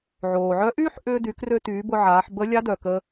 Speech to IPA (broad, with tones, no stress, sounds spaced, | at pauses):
ʕ oː˩ ʕ œ˧˥ ʔ yː˥ ħ ʔ ʏː˧ d y˩˧ k r ø˧ t yː˩˧ b ʊ˧ ʕ aː˩˧ ħ b ə˧˥ lʲ a˧˥ d œ˩ k ə˧